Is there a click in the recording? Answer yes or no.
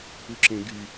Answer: yes